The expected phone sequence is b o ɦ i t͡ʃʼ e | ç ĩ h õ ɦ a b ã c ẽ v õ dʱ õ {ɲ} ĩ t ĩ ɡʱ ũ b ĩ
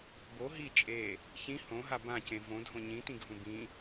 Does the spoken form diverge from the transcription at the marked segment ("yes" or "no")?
no